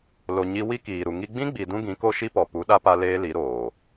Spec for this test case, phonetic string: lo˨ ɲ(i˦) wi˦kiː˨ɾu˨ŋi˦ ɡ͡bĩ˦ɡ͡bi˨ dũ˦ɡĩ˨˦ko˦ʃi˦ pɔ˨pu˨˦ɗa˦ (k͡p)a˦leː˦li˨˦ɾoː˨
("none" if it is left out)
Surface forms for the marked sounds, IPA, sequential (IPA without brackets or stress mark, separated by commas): i˧, p